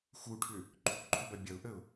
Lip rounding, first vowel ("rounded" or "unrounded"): rounded